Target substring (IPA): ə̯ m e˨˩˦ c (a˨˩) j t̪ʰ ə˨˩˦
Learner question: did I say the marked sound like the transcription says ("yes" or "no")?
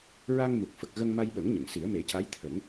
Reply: no